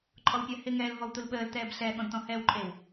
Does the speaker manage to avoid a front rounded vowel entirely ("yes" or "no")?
yes